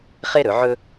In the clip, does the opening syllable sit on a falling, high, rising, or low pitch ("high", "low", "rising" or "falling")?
high